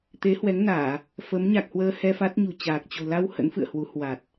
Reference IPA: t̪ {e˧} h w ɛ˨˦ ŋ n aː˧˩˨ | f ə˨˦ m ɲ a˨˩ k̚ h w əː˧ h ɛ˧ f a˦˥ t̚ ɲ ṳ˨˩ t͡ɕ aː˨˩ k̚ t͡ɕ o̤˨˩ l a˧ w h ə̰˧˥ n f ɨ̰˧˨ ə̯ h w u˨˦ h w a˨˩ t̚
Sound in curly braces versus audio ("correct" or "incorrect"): incorrect